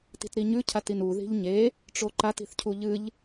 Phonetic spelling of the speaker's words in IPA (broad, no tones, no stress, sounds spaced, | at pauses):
t i̤ t ɾ i ɲ ʉ cʰ a t i n u ð i̤ ʎ ɲ e | ʈ͡ʂ o ǃ a t i̤ θ cʰ u ʎ ɨ ʎ